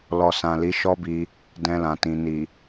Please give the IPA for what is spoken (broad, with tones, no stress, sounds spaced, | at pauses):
l ɔ˨ s ã˨ l i˨˦ ʃ ɔ˦ b i˧ | d ɛ̃˧ l ã˨ t ĩ˨ n i˨